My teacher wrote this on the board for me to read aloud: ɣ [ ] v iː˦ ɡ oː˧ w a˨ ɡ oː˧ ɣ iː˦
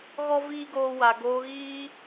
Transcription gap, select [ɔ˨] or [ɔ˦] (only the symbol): ɔ˦